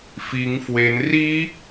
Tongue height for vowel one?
high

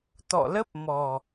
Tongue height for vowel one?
mid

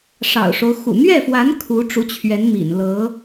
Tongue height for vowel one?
low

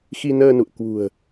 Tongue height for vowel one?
high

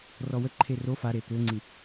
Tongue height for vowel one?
mid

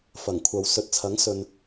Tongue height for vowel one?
low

